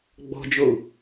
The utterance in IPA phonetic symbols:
ɡ͡bɔ̤d͡ʒou̯

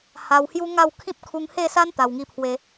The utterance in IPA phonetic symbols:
ha˧whju˦ŋa˥˧w kʰĩ˦p̚kʰu˧ŋhe˥˧sa˦n t̪a˨˩wŋi˧pʰwe˧

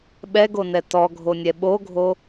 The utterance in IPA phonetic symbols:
ɓɛɡonɛ tɔɡʱonʲɛ ɓoɡʱo

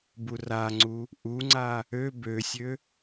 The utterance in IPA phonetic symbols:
buraŋ͡ǀu | ʔuŋ͡ǀa | ø bøsʲø

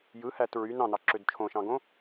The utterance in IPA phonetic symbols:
jɯhæt ɹy nɑ̃nɑǁød t͡ʃʰõʃɑ̃ɡõ

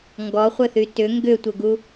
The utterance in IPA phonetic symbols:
ŋɡɔχʷɘθy tʏ ŋɡʏtʷɘɡu

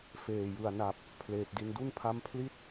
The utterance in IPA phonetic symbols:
feː˨˩jɯ˨˩a̯ na˨˩p̚ | pʰleː˨˩p̚di˧n du˥˩npʰa˦˥mpʰli˥˩t̚

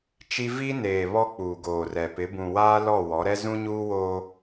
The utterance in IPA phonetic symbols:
t͡ʃi˦ vi˦neː˨ βɔ˦k͡puː˨ɡoː˨rɛ˨ pɪ˨˦bũ˨waː˦ lɔ˦˨wɔ˨˦ɾɛ˦ zũ˦ɲuː˦woː˦

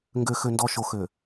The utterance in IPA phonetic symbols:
ŋɡø˨xø˨ndɔ˨ ʃo˨xø˨

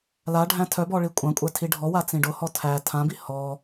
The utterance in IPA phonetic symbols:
laɖʱæ̃ tʰœbɔ ɭikʷʼãkʷʼæ tʰiɖʱɔwa t͡sĩɖʊhɔ tʰæ tʰãbi hɔ

